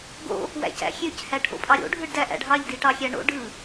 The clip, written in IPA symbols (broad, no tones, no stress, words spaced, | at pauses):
ɡo̰ | wæ̰cæ̰xʲøc hæʈʰo̰pʼɑɾʲo̰ ɖʱɯɖdæʔæ̰ɖɦɑʎ diʈɑxʲæɳo̰ ɖɯ